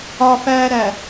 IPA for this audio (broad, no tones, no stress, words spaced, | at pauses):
ɒfæːɾæ